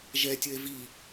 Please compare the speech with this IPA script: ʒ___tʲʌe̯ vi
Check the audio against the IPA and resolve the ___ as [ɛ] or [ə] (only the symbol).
ɛ